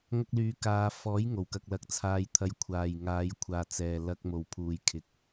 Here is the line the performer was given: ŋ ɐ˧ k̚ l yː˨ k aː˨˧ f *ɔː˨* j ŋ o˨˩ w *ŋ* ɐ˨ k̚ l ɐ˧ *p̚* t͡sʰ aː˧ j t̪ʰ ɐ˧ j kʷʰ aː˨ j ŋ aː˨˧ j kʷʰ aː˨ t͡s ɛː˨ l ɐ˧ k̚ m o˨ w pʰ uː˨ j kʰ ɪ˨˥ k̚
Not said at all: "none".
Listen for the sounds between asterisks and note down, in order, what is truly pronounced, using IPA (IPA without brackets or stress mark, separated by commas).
ɔː˨˥, k, k̚